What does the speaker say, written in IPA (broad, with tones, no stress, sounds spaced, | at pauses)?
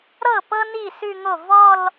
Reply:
ɾ ɤ˥˩ p ɤ˥ n i˥˩ s ʉ˥˧ ŋ o˥˩ v ɔ˥˧ l